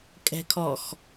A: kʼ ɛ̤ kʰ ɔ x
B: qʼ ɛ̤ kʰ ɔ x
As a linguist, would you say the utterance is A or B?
A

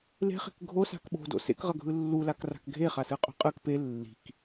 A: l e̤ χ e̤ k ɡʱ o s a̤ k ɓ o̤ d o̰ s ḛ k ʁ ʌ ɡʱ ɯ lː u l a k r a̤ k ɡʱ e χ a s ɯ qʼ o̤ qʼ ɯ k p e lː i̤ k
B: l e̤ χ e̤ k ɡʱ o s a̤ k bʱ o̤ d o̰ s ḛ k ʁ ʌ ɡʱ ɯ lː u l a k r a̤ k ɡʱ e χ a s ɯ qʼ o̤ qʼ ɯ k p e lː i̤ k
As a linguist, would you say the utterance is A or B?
A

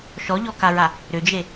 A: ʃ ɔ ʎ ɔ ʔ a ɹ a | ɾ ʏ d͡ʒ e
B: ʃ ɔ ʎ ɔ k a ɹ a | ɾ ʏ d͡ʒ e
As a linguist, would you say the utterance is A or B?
B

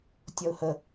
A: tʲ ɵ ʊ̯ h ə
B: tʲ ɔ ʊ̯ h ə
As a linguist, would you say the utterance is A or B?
B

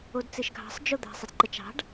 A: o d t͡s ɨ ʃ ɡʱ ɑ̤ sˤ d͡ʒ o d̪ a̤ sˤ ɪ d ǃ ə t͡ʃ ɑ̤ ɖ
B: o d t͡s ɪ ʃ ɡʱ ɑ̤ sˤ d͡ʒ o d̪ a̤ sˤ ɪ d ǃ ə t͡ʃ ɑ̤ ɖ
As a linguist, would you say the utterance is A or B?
A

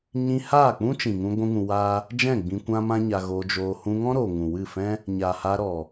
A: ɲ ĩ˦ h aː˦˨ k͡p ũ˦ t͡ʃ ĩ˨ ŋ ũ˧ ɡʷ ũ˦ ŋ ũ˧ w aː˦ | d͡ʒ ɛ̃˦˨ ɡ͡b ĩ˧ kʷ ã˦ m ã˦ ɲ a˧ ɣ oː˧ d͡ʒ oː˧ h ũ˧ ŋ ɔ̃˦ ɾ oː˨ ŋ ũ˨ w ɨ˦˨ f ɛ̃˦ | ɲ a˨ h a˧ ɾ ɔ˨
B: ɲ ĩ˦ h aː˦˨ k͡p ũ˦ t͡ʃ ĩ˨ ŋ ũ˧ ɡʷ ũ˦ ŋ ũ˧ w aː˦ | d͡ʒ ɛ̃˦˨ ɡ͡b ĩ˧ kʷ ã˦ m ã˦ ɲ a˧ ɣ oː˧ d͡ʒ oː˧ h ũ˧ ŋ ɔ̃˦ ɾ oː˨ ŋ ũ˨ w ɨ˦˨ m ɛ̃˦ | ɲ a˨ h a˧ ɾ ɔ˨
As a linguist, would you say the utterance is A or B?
A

